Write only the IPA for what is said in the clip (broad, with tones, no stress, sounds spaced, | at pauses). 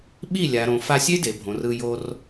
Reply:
ɓ i˦˨ lʲ a˨ ɾ õ˨ f a˧ sʲ e˦ d e˨ bʱ õ˨ r ɯ˧ j o˧ r